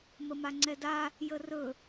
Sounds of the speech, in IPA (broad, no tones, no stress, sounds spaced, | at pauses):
m ə m a ŋ͡ǀ ɛ d a | j ə r ɵ